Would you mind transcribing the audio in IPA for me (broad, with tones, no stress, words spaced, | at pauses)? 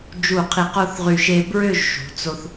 d͡ʒu˧˩qʰi˧˩qo˥˧θʁy˧ ʃe˧bɹø˥˧ʒ ʃṳ˩˧t͡so˥˧θ